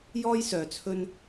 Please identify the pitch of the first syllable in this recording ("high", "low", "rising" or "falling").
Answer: high